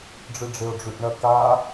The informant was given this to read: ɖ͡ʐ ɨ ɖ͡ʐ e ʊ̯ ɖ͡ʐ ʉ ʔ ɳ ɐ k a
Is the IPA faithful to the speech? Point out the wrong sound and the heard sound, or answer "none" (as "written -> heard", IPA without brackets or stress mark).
none